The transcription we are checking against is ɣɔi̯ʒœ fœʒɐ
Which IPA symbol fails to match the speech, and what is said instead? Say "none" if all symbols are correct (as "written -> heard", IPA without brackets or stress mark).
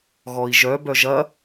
f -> b